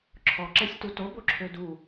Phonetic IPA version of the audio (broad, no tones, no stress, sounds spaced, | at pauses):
ǁʰ ɔ ǁ ɛ sʲ t u t o b o ǁʰ ø d u